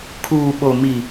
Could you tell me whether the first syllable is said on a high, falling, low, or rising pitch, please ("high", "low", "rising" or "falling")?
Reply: low